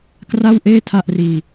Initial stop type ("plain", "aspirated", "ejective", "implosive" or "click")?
plain